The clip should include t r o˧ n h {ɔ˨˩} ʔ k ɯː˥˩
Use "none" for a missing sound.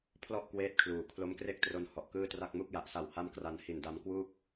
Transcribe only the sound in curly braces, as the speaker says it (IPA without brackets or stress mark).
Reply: ɔ˨˩